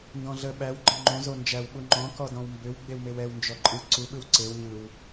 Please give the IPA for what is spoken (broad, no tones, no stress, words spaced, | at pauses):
ndɔ̃ɮə ɓæwɡ͡ǃə̃ ŋ͡ǃõzo nd͡ʒæwɓu ŋ͡ǃɔ̃kɔdɔ̃w mbʏw ɡ͡bewmewɛw nd͡ʒɔǃʼɯ ǀuɓɯw ǀew ɲɯw